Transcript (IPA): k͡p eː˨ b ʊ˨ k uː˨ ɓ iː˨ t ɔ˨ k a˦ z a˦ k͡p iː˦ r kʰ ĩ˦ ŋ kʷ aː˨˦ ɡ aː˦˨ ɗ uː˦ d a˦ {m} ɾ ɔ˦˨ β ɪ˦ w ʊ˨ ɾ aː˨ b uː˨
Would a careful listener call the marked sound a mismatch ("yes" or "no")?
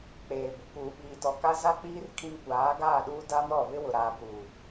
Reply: no